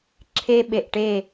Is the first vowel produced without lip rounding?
yes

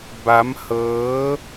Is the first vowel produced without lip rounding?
yes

